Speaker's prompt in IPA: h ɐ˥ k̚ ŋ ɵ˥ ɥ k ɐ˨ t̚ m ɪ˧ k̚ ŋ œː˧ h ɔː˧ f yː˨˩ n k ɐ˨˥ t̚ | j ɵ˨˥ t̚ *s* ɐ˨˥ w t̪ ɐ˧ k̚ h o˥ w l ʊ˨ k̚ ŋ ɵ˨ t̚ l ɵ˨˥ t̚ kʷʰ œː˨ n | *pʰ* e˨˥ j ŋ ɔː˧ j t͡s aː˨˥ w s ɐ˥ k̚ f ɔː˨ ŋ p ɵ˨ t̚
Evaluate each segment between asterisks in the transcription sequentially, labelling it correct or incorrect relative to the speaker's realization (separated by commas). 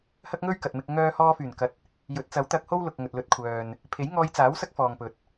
incorrect, correct